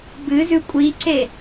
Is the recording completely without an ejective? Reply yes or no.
no